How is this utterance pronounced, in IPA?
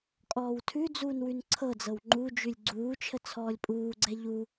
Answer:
kʼ ɔː w tʰ ʉ d͡z uː n w ʉ n ǀʰ ɤ d͡z ɤ w ŋ͡ǃ u d͡ʒ ʉ lʲ ɡ͡ǀ uː t͡ʃʰ ə t͡sʰ ɔː lʲ pʼ uː ɡ͡ǀ ɛ ʎ u

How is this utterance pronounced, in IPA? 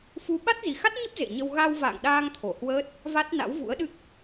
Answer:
f u˨˦ ɓ a˦˥ t̚ z i˨˩ x a˦˥ t̚ ɲ ə˦˥ p̚ z ḛ˧˨ ɲ ə˧ w ɣ a˧ w v a̰ː˧˨ ŋ ɗ aː˧ ŋ t̪ʰ o˧˩ h w əː˦˥ t̚ | v a˦˥ t̚ n a̰˧˥ w v ṵ˧˥ ə̯ ɗ ɨ˦˥ k̚

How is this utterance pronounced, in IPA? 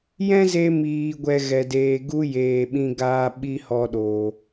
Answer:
j ɛ̃˦ z e˧ m iː˨ ɡʷ ɛ˨ ɣ ɛ˨ d eː˨ ɡ u˦ j eː˨ ɓ ĩ˧ ɡ aː˧ ɓ i˦ h ɔ˧ ɗ oː˨

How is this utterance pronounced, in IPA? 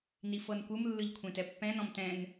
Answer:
n i f ɤ n kʷ ɯ m lː ɯ ʎ kʷʰ ẽ t ɛ pː ɛ̃ n ɔ̃ m t ɛ̃ n

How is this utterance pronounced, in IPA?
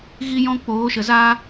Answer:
ɣ i˦ j ɔ̃˦ k͡p oː˨˦ ʃ ə˨ z aː˦

